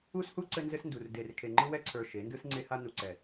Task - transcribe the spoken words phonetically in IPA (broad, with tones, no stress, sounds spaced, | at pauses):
u˦ s h u˦ ǀ ɘ˦ n z ɘ˦ s n d u˨ r d e˨ r kʰ e˨ ŋ͡ǃ ɯ˦ w ɛ˦ ǀʰ ə˞˨ ʃ e˨˦ n d ɯ˦ s ŋ͡ǀ e˦ h a˦ n u˨ ǀ ɛ˨